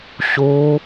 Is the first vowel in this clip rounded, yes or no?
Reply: yes